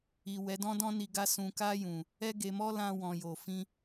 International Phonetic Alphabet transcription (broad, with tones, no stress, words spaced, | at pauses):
i˨ wɛ˨˦dɔ̃˦dɔ̃˦ni˧ ɡa˧ sũ˨ka˧jũ˨ | ɛ˦ɡe˧mɔ˦ lã˧wɔ̃˨jo˨fĩ˧